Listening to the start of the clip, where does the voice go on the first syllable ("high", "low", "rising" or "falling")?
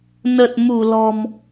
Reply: low